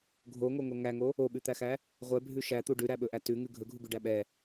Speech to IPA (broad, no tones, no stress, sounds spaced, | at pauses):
ɡʱ o ŋ o ŋ o ŋ æ ŋ o | o ɓ ʉ t̪ æ x æ | ʁʷ ɛ bʱ ʉ ʃ æ t̪ u ɖ ʉ ɾ æ ɓ ɵ ʔ æ t ʉ ŋ ʉ ɡʱ ɵ ɡʱ u ɡ ʉ ɖ æ ɓ ɛ